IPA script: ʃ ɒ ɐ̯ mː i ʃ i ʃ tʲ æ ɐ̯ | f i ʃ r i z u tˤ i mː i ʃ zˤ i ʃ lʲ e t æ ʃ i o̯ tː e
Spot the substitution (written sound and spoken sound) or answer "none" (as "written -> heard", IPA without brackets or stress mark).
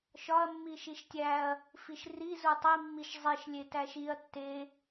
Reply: o̯ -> ɐ̯